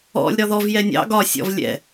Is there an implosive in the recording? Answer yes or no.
no